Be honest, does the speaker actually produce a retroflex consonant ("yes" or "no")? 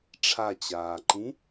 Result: yes